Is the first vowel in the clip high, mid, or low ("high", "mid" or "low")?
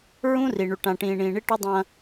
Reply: high